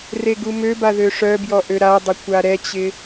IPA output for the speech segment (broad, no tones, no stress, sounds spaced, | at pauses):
r e ɡ u m ø b a ð ø ʂ œ b j ɔ ʔ ø ɾ a dˤ ɪ kʷ a ɾ ɛ t͡ɕ ɪ